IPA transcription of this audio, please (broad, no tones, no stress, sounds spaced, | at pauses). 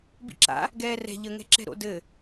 b ḭ ǁ a̰ | ɡ ɛː r ɛ̤ ʎ ə ŋ ɛ̤ ǁ ɛ̤ ɾ o̰ d ɘ